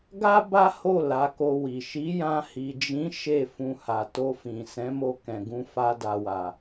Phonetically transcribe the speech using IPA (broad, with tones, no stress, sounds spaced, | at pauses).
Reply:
ɡ a˦ b a˦ h o˦˨ l a˨˦ k o˧ w i˨ ʃ i˨˦ j ã˧ h i˨ d͡ʒ ĩ˨˦ ʃ e˦˨ f ũ˧ h a˨ t o˧ f ĩ˨ s ɛ̃˨˦ m o˧ k ɛ̃˨ ɡ ũ˧ f a˧ d a˨ w a˨